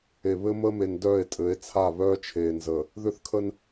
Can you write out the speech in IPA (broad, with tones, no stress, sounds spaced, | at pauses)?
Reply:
e˨ β ɘ˦ m ə˦ m e˨ n d œ˦˨ e̯ tʼ ɘ˨˦ e̯ t͡sʰ a˦˨ β œː˦ t͡ʃʰ eː˨ n z əː˨ | ð ʏ˦ θ kʰ ə˦ n